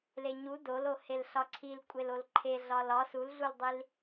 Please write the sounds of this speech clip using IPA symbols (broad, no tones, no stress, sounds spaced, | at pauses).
l e ɲ u d o l o h e l ɬ ɒ ǀʰ i l kʷʼ e l o l ǃʰ e ɮ ɒ l ɒ s u l ɮ u l dˤ i l